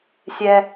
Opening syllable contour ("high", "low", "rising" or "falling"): high